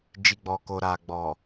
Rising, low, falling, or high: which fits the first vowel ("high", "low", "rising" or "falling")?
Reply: low